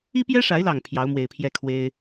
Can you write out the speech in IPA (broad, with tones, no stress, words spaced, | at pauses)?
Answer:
i˦pjɛ˦ʂa˨˦ɪ̯lɑ˨˩ŋ pʰjɑ˨˦ʊ̯mwe˨˩ɪ̯pʰjɛ˥˨kʰwe˦ɪ̯